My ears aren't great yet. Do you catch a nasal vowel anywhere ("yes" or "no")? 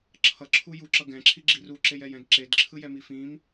yes